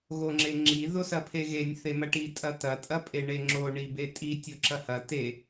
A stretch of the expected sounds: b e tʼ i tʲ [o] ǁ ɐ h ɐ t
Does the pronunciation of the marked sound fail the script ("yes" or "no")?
no